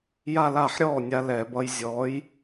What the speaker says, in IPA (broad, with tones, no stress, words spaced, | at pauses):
ja˥˧la˥˩ħ ɾʲɔː˥˩ nʲa˧lɛ˧˩˧bʌ˧j zʲɔː˧˥j